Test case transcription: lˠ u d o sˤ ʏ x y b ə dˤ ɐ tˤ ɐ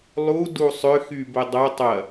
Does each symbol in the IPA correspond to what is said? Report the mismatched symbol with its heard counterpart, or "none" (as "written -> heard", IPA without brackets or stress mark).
o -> u